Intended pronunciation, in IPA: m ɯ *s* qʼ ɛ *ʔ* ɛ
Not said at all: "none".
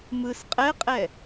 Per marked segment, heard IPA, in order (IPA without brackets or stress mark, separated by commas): s, qʼ